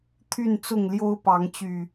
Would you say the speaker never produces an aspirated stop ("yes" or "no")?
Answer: no